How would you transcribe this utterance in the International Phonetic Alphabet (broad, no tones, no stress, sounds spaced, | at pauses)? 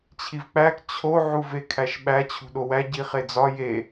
t͡ɕʰ i v k͡p æ k t͡ɕʰ o ʕ u v e kʰ æ ʃ ɓ æ t͡ɕʰ ṳ ɗ o w æ ɟ i χ e d͡z ɒ j e